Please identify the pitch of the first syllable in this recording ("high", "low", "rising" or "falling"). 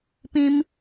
high